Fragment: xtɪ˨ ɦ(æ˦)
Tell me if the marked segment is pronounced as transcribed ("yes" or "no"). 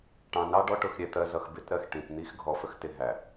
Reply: no